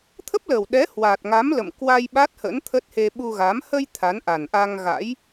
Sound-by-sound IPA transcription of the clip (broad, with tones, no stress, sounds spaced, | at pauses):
t̪ʰ ə˦˥ p̚ l ə˨˩ w ɗ ɛ˨˦ h w aː˨˩ t̚ ŋ a˨˦ m l ə̰˧˨ m k w a˧ j ɓ a˦˥ t̚ h ə̰˧˥ n t̪ʰ ə˦˥ t̚ h e˧ ɓ u˧ ɣ a˨˦ m h ə˧ j t̪ʰ a˨˦ n ʔ a˨˩ n ʔ a˧ ŋ ɣ a̰˧˥ j